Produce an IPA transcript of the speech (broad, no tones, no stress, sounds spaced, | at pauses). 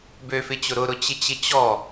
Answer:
b ø f ɪ t͡ɕ ʊ ɾ ʊ ɾ ʊ t͡ɕ ɪ t͡ɕ ɪ t͡ɕ ɔ